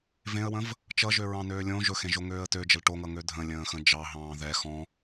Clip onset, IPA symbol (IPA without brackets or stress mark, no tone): v